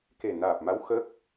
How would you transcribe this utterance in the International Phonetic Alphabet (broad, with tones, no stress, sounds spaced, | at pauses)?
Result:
k e˨˩ n aː˨˩ p̚ m a˧˥ w x ə˦˥ k̚